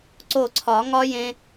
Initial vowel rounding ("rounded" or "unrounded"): rounded